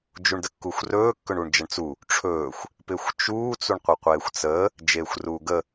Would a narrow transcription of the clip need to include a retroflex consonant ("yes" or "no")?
yes